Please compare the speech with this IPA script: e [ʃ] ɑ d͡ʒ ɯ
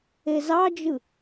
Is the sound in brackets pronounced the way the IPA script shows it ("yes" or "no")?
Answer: no